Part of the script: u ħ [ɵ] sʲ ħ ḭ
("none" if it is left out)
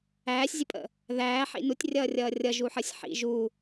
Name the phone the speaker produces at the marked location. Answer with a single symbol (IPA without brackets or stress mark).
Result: ə